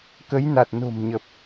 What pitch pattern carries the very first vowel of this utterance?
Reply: rising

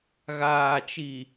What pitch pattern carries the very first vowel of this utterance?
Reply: low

